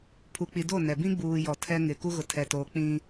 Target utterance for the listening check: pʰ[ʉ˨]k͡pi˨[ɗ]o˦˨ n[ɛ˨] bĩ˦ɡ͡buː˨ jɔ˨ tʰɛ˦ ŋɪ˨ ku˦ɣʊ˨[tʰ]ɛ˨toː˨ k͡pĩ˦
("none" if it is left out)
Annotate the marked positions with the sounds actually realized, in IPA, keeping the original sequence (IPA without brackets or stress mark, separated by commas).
u˨, d, ɛ˨, tʰ